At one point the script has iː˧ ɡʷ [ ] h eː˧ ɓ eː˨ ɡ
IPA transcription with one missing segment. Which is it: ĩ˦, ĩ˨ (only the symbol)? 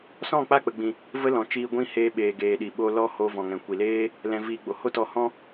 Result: ĩ˦